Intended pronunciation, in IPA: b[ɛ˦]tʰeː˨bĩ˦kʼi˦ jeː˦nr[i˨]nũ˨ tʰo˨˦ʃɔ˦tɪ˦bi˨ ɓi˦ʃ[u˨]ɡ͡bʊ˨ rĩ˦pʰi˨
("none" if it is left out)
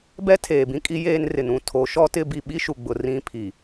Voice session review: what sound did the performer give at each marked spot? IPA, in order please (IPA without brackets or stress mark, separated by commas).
ɛ˦, ɪ˨, u˨